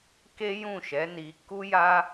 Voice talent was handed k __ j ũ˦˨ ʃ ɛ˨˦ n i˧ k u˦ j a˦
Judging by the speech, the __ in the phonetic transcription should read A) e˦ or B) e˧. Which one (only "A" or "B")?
A